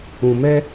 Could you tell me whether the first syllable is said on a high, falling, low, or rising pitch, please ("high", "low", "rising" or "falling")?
low